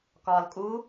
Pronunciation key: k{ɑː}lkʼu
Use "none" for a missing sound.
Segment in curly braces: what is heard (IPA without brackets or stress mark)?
ɒː